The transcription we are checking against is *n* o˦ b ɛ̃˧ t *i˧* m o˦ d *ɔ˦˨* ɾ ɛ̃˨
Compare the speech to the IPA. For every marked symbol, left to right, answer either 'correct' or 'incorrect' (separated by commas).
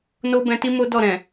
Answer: correct, incorrect, correct